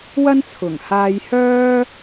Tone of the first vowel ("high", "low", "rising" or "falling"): high